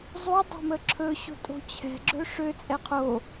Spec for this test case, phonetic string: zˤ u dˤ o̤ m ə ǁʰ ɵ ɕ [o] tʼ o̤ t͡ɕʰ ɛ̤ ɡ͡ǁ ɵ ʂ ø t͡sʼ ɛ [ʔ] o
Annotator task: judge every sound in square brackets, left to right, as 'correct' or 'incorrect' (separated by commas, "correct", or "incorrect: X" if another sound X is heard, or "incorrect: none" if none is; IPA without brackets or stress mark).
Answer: incorrect: o̤, incorrect: qʰ